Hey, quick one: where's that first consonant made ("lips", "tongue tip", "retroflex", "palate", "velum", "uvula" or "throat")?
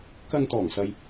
velum